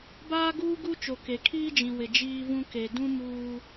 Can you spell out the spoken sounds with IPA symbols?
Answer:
b aː˦ ɡ uː˦ ɡ u˦ t͡ʃ o˨ k e˨ kʰ iː˦ d͡ʒ ĩ˨ w ɪ˨ d͡ʒ iː˦ v ũ˦ k e˨ d ũ˦ m uː˦

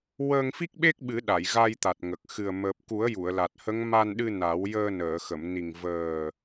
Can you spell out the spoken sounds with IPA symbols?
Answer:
w əː˧ ŋ f i˦˥ k̚ ɓ e˦˥ k̚ ɓ ɨ˨˩˦ ɗ a˨˩˨ j ɣ a˧ j t̪ a˨˩ t̚ ŋ ə˨˩ k̚ x ɨ˨˩ ə̯ m əː˨˩ p̚ k u˨˩˦ ə̯ j u˨˩˨ ə̯ l a˨˩ t̚ h ə˧˥ ŋ m a˧ n ɗ ɨ˧ n a˨˩˦ w j əː˧ n əː˨˩˨ x ə˨˩˨ m n i˨˩ ŋ v əː˨˩

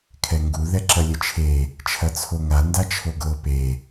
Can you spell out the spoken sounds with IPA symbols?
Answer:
kʰ ɛ ŋ ɡ u ð ɛ ǁ ɐ lʲ ə t͡ʃʰ e | t͡ʃʰ ɐ t͡sʰ o ŋ a n d a t͡ʃʰ o ɡ ɤ p e

